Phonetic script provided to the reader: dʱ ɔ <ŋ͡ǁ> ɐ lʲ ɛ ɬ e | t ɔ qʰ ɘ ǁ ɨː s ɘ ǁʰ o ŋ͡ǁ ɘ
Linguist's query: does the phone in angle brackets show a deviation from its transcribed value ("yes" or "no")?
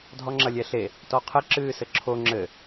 no